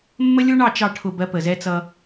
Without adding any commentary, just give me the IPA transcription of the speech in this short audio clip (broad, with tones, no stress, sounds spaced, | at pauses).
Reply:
mː ə˦ lʲ u˦ ɳ ɑ˦˨ t͡ʃ ɑ˦˨ ʈʰ ʊ˦˨ b ɜ˦ p ə˨ z ɛ˦ t͡s ʌ˦